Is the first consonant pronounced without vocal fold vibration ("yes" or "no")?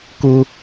yes